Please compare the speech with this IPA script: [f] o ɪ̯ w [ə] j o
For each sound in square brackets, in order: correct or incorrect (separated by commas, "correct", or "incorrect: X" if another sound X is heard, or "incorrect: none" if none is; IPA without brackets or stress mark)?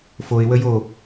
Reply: correct, correct